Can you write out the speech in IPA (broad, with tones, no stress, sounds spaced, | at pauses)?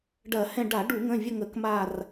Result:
ɖ ɐ˧˩˧ h ɛ̃˦˨ ɖ a˧˩˧ ɖ u˧˩˧ ŋ ə̃˩˧˩ vʲ ə˦˨ ŋ ə˧˩˧ k m a˦˨ r